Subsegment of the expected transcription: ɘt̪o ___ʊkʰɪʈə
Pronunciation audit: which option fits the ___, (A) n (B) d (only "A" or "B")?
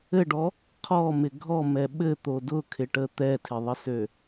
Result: B